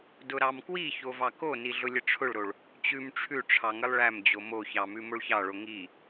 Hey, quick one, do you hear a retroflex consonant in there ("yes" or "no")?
yes